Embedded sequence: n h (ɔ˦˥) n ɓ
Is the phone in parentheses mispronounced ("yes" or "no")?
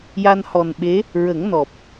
yes